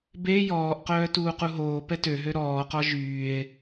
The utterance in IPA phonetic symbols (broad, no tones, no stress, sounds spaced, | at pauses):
b e j ɔː ʔ q œː t uː q u ɦ oː p ɛ t ø ɦ ø ɾ ɔː q ɔ ʒ yː e̯